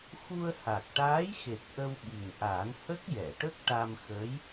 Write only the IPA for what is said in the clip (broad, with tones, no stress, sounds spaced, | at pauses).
x u˧ ə̯ h a˨˩ k̚ ʈ aː˧˥ j x e˨˩ k̚ ʔ ə˧ w ɓ i˨˩ ŋ ʔ aː˨˩˦ n h ə˦˥ k̚ j ɛ˨˩˨ ʈ ə˦˥ k̚ ʈ a˧ m x əː˧˥ j